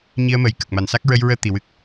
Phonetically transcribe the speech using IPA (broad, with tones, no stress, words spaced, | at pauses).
ɲi˧ə̯məː˨˩j kə˨˩k̚ma˨˩n sa˦˥k̚ ɹə˧j ɹəː˧ t̪i˨˩wɨ˦˥k̚